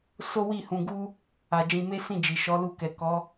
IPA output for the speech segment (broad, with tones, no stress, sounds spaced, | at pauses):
s o˦ w i˦˨ h ũ˧ ɡ u˦ | a˨ d͡ʒ ĩ˧ m e˦ s ĩ˦˨ d͡ʒ i˨ ʃ ɔ˨˦ l u˧ k ɛ˨ k ɔ˨˦